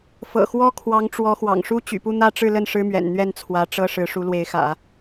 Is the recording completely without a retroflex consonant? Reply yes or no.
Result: no